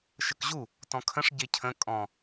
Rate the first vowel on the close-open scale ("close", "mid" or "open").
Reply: mid